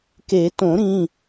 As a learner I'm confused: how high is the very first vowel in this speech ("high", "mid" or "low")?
mid